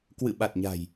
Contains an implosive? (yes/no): yes